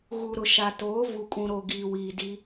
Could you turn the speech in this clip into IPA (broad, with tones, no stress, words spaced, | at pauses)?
ɣu˨ɾʊ˨ʃa˨ toː˨˦ vu˨kʼũ˨ɾo˨ ɡiː˨wiː˨di˦